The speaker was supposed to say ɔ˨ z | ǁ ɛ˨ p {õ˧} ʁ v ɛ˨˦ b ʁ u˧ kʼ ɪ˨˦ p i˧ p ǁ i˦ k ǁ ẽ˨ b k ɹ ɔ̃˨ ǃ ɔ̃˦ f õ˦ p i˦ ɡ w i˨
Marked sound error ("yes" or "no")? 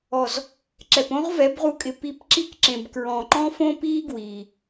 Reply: yes